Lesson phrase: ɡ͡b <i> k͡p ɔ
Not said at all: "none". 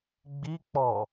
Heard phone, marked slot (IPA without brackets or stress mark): i